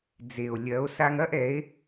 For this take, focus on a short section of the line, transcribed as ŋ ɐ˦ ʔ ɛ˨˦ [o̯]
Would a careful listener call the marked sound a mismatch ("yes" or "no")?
yes